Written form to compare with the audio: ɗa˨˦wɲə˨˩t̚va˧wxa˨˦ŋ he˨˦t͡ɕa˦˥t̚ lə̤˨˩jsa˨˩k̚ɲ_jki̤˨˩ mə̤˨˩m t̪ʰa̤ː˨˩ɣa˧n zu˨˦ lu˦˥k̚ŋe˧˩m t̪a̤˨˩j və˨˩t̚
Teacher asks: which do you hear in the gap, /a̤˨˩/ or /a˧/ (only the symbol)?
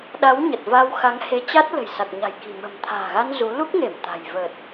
a̤˨˩